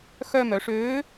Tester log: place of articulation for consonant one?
velar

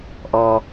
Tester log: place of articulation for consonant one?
glottal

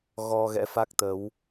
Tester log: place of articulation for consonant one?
velar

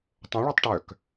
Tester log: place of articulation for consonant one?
alveolar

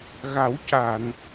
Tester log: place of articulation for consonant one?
velar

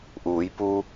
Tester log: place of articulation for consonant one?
glottal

